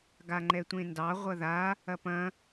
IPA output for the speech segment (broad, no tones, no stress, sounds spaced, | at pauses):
ɡ a ŋ͡ǃ ɛ tʷ ẽ n d ɑ ʁʷ ɐ ð a | ɐ p ɐ̃